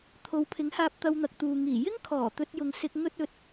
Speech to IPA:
t̪ʰ o˨˧ w pʰ ɪ˨˥ ŋ h aː˧ p̚ t̪ ɐ˧ w n̪ ɐ˨ k̚ t̪ uː˨ ŋ iː˨˩ j ɪ˥ ŋ kʰ ɔː˨˩ t̪ ɵ˧ t̚ j ʊ˨ ŋ s ɪ˧ k̚ ŋ ɵ˥ t̚ ɵ˧ t̚

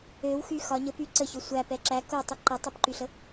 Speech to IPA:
ø w x y x ɒ ɲ ə p y ǀ ə ç ø sʷ æ p ɛ ǁ æ k o tˤ y ǃ ɛ tˤ e p ǃ y ɬ ə

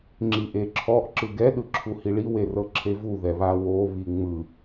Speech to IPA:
ŋ͡ǁ i ʔ e ǁʰ ɔ ʔ ǁ ɯ ɡ ɛ ɗ ɯ ǁʰ u h i ɭ i w e r ɤ ǁʰ e v u ð ɛ β a w o β i ŋ͡m ɯ

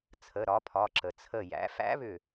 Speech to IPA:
t͡sʰ ə˩˧˩ ɾ ɒ˩˥ pʰ ɒ˩˧˩ ǁ ə˩ t͡sʰ ə˧˩ j æ̰˩˥ f æ̰˧˥ β ʏ˧˩

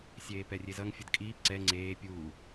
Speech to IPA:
sʲ eː p ɛ rʲ e z ʌ ŋ fʲ ʌ d kʼ iː p ǀ ɛ ŋ͡ǀ eː pʲ uː

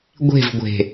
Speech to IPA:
ɡʷ e̤ v ɡʷ e̤

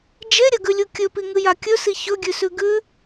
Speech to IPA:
d͡ʒ e ɾʲ ɐ ɡ ʉ lʲ u kʲ ɵ p i ŋ ɨ j a kʲ ɵ s i ç ɵ ɡʲ ʉ s ʉ ɡ ʉ

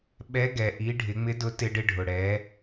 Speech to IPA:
ɓ ɛ˧˥ ɡ ɛ˩ ʔ i˩˧ ɖʱ ɪ˩˧ ŋ͡m ɪ˧˥ d ʊ˧˥ t ɪ˧ ɖ ɪ˧ ɖʱ ʊ˩ ɽ ɛ˩˧

